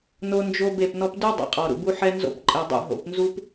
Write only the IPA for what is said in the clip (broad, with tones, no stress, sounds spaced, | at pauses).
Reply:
n o˦ n d͡ʒ o˦ b e˦˨ p n ɔ˦ p d u˦ dˤ ḛ˨ qʼ ɔ˨ ɾ ṵ˨ b u˦ ħ ɛ˦ n z o̰˦ p ǃʼ e˨ dˤ ṵ˦˨ ɦ o̰˨ p n z u˦ p